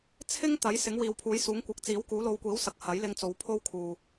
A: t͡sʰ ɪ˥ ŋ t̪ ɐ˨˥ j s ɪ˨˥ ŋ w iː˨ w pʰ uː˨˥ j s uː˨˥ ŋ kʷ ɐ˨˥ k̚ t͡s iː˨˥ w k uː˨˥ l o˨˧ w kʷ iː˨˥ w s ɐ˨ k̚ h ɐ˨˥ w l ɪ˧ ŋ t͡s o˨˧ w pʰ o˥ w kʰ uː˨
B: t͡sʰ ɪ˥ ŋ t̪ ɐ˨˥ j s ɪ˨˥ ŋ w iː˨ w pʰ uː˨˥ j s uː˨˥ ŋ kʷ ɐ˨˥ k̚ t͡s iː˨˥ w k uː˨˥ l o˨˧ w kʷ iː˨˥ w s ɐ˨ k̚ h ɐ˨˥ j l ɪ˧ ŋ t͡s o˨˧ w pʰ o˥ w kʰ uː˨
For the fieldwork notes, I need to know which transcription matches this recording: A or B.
B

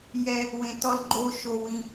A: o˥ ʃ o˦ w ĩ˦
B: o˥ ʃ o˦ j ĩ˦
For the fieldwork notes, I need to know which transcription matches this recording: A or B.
A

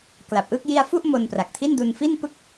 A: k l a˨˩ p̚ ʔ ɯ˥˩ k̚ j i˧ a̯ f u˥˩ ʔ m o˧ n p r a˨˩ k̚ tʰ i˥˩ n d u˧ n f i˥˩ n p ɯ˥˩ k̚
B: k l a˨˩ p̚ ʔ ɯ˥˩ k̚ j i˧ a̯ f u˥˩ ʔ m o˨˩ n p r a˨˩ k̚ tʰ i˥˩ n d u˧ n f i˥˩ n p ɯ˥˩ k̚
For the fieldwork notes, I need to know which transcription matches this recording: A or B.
A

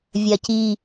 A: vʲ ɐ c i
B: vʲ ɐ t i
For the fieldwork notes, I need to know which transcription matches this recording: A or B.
A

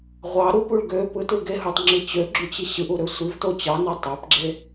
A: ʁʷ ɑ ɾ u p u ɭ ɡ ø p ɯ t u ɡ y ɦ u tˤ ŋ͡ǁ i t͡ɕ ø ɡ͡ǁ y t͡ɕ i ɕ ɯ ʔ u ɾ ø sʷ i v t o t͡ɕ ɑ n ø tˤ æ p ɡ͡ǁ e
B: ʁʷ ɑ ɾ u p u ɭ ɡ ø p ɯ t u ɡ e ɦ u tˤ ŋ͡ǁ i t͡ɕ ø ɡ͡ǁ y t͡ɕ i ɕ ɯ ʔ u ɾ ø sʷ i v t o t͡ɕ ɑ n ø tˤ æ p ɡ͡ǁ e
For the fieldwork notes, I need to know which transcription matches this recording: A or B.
B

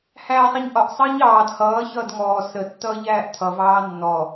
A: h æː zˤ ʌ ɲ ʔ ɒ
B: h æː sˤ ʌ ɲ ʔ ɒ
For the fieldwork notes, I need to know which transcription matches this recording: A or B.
B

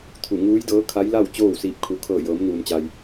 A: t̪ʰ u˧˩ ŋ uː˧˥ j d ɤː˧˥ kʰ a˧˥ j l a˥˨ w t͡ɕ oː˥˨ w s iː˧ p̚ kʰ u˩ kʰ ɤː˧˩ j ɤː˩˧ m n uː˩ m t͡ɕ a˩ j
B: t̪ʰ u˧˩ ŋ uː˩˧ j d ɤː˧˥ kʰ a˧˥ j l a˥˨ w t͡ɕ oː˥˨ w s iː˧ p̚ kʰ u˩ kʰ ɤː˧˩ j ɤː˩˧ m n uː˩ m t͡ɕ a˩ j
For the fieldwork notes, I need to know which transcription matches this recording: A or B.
A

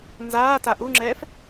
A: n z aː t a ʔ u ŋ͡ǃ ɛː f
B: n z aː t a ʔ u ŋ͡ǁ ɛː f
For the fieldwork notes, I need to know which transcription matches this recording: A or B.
B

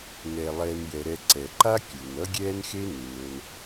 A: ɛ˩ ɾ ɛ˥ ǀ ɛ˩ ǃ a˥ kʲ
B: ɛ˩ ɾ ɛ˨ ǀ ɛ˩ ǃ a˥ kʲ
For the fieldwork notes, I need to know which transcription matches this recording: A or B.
B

